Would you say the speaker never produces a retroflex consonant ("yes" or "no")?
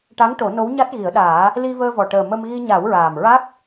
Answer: no